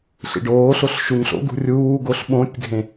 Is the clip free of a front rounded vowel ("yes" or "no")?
yes